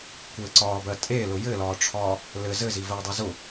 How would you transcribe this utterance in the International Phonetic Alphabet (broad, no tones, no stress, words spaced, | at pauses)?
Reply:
kʷɘǀɒːbɜ tʼelʊ jɘlɒːʈ͡ʂʰɒː | lɘ zɘzivɜdˤɜ zʊ